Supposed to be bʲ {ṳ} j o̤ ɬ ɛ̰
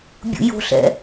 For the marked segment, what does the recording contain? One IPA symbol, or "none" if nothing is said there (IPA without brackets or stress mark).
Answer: ṵ